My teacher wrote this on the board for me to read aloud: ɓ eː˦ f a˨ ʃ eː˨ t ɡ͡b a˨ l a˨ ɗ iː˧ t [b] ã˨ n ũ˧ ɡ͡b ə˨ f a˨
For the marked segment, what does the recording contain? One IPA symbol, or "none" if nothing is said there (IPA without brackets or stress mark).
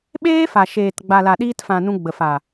f